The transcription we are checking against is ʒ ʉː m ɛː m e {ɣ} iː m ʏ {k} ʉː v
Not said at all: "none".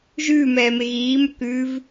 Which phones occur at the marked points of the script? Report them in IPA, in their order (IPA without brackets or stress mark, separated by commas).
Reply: ɣ, k